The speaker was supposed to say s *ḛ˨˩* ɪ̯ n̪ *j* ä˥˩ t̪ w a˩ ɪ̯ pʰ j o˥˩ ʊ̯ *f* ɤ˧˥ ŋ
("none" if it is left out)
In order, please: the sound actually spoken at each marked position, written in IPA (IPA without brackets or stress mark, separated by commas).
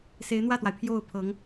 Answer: e˧˥, w, pʰ